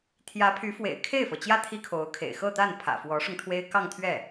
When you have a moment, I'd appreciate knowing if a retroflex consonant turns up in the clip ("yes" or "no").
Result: yes